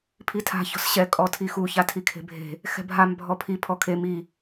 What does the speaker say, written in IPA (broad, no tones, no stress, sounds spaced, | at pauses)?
pʰ i tʰ a̤ ç ɔ̤ s ɕ ɛ kʼ ɔ tʰ i x u ç a tʰ i kʰ e̤ bʱ e̤ | x ɛ̤ bʱ a m bʱ ɔ pʰ i pʰ ɔ kʰ e m i